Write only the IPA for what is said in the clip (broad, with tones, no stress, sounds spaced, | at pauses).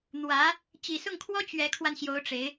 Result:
n̪ w ä˧˥ | t͡ɕ i˨˩ s ʊ˥˩ ŋ kʰ w ɔ˥ t͡ɕ ɥ ɛ˧˥ kʰ w a˧ n ɕ j o˧˥ ʊ̯ ʈ͡ʂ e˧˥ ɪ̯